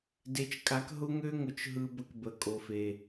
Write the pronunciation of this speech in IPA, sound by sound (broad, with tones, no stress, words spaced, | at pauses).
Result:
de˨t͡ʃkʼa˨˦k ɦʊ˦ŋø˦ŋʊ˨t͡ʃ ɦɯ˦bə˦k bə˨ kʼo˨fe˨